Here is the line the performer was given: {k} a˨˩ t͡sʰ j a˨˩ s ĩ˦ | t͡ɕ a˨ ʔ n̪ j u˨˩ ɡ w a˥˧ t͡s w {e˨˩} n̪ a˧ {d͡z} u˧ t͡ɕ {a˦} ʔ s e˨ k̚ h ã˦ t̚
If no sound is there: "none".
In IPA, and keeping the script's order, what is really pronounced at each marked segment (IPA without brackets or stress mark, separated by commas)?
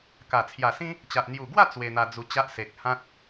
k, e˧, d͡z, a˦